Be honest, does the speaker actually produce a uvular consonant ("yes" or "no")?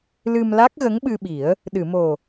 no